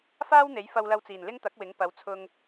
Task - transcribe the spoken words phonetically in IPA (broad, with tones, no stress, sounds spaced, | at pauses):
f aː˥ w n̪ e˨˥ j f ɐ˧ w l ɐ˧ w t͡s iː˨˩ n l ɪ˥ ŋ t̪ ɐ˨˥ k̚ w ɪ˨˥ ŋ p ɐ˨˥ w t͡sʰ ʊ˧ ŋ